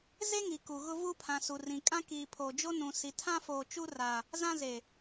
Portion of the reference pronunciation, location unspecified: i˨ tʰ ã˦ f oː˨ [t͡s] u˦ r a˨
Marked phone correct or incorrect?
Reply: incorrect